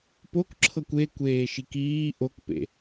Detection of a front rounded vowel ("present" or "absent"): absent